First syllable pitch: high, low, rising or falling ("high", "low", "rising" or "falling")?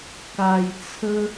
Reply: low